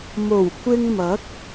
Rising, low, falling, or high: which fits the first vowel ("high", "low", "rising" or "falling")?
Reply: low